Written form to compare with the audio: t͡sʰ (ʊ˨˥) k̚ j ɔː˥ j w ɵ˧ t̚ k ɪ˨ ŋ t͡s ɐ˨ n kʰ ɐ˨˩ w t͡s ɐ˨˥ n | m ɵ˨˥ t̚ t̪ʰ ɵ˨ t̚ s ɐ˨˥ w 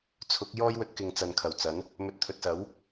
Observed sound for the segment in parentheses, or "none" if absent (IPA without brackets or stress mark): ʊ˨˥